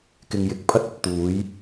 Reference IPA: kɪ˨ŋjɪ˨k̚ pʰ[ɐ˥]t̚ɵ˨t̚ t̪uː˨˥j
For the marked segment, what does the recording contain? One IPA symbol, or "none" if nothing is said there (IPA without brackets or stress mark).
ɐ˥